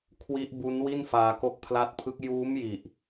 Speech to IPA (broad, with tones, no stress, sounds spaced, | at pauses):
kʰ w i˦˥ ʔ b u˦˥ n w i˥˩ n f aː˧ k o˦˥ k̚ pʰ l a˦˥ t̚ pʰ ɯ˦˥ k̚ j uː˦˥ m j i˨˩ ʔ